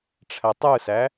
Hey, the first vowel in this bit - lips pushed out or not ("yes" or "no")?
no